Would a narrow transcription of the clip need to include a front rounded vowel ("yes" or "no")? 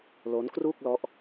no